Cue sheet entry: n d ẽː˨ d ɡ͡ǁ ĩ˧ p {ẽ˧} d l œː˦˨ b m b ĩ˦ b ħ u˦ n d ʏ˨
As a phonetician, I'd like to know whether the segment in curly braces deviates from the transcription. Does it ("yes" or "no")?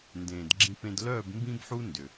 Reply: no